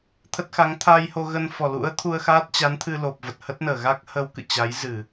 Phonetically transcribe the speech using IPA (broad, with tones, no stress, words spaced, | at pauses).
t̪ʰə˦˥t̚xa˨˦ŋ t̪ʰa˧jho˧ɣə˧n fɔ˨˩lṵ˧˥ə̯t̪ʰu˧ə̯ xaː˦˥t̚t͡ɕa˨˦nt̪ʰɨ˧ lo˨˩p̚və˨˩t̚hə˦˥t̚nəː˧˩ ɣa˦˥k̚hə˧w kɨ̰˧˨t͡ɕa˨˦j zɨ˧˩˨